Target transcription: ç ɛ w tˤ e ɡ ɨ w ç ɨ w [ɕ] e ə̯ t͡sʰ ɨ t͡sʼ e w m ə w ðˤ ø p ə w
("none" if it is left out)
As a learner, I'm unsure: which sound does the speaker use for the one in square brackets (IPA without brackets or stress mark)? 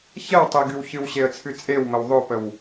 ɕ